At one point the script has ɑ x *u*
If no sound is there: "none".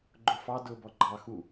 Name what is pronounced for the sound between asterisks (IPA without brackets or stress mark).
u